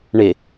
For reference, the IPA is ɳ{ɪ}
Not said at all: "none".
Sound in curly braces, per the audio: ɪ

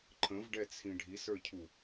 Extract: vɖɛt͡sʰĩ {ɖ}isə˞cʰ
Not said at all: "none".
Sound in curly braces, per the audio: ɖʱ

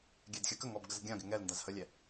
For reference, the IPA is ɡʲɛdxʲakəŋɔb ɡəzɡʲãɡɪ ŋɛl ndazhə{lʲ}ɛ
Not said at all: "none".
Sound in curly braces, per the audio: lʲ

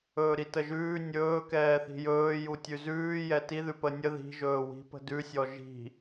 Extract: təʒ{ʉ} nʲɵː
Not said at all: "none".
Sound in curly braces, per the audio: ʉː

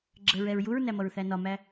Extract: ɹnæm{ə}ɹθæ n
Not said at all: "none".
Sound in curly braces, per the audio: ʌ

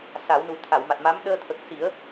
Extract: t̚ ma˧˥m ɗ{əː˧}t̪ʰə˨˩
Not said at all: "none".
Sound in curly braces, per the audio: əː˧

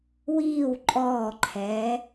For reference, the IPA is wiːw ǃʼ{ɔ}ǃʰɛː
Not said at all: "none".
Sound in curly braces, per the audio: ɔː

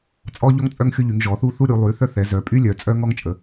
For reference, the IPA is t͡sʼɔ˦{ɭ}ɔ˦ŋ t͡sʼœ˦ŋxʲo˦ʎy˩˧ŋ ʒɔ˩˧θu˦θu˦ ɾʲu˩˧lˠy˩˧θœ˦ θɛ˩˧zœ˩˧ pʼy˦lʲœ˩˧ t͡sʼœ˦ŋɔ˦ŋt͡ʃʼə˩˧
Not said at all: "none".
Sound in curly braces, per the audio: ʎ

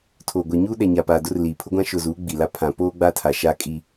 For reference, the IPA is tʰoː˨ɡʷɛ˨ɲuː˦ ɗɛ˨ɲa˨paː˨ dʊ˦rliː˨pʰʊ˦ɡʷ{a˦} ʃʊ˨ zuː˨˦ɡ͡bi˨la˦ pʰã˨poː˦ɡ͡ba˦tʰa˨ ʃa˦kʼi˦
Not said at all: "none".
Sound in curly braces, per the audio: ã˦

